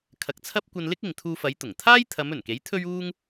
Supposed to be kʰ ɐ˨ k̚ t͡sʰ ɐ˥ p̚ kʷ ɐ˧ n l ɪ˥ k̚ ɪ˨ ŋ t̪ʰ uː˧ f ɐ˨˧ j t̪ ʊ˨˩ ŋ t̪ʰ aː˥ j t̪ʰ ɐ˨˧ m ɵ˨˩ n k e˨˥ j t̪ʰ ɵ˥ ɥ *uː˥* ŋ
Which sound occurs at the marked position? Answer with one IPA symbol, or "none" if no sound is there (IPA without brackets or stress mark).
uː˥